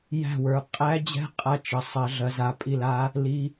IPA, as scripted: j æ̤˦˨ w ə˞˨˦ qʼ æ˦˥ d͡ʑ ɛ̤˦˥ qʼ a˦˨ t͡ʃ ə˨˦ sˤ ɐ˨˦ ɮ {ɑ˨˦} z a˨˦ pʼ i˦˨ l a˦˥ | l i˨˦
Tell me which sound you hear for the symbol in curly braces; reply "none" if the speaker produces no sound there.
ɐ˨˦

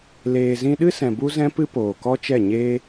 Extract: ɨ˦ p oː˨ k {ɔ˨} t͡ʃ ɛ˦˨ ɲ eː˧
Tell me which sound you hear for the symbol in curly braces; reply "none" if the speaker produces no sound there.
ɔ˦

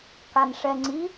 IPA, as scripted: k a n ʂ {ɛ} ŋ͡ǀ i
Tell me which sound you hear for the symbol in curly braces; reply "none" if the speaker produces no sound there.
ɛ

